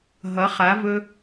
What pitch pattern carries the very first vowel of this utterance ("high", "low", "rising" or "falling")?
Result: rising